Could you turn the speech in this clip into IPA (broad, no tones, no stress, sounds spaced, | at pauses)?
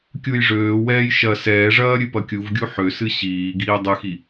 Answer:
kʲ u j ʐ øː w ɛː j ʃ ɐ s ɛː ʐ ɐː ɾʲ ɨ p ɐ kʲ u v ɡʲ u ħ ø s ɨ ɕ iː ɡ iː dˤ ɨ x i